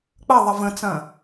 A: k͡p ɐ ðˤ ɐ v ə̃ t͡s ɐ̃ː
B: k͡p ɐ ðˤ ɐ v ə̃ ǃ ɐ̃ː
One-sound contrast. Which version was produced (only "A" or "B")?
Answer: A